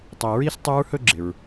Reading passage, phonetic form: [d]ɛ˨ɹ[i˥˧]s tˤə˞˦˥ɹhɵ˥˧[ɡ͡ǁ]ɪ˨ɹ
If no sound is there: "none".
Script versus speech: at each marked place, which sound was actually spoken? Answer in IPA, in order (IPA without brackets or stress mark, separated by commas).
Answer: tˤ, i˥˧, ɡ͡ǁ